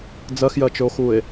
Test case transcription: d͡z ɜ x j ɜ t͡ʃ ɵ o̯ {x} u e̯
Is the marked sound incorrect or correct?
correct